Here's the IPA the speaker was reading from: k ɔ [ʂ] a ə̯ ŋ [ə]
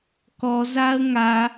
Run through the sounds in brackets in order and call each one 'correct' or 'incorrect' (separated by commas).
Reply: incorrect, incorrect